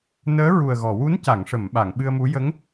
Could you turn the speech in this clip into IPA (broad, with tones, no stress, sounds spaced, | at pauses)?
n əː˧˥ ɹ u˨˩ ə̯ ɣ ɔ˨˩˨ w u˧˥ n c a˨˩˨ ŋ ʂ ə˨˩˨ m ɓ a˨˩˨ ŋ ɓ ɨ˧ ə̯ m u˧˥ j ə˧˥ ŋ